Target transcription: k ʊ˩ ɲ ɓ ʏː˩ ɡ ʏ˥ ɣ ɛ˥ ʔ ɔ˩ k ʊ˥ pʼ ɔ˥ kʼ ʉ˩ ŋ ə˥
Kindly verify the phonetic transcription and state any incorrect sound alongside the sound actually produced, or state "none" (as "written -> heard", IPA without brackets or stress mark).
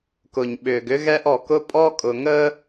ʉ˩ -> ʊ˩